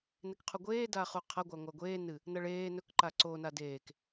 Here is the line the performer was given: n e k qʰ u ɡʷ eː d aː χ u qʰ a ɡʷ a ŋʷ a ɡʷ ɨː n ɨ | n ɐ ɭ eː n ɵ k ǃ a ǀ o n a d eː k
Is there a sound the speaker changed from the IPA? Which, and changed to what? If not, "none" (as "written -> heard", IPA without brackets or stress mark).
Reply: ɨː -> eː